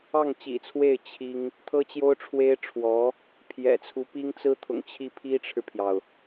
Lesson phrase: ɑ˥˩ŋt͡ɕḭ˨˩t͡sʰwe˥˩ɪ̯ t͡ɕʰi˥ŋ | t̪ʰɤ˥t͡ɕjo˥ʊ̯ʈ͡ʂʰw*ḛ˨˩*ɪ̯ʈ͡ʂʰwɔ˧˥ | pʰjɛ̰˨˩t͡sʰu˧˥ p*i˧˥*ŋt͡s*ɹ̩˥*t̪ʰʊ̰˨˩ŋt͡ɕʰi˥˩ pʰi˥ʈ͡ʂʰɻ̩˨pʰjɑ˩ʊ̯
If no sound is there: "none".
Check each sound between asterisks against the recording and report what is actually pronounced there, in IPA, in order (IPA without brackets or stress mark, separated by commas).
e˥, i˥, ɹ̩˥